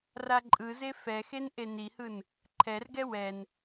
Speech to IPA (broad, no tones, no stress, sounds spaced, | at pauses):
r a ǃʼ ɯ z e f ɛ x e n ʔ e n i h ɯ n | ǃʰ ɛ r ɡ ɛ w ɛ n